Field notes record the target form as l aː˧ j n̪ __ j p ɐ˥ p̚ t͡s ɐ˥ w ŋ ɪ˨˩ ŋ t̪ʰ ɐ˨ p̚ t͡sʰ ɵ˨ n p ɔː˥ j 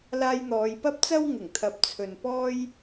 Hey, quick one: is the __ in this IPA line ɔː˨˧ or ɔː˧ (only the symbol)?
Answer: ɔː˨˧